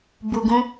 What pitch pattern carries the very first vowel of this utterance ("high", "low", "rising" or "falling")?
low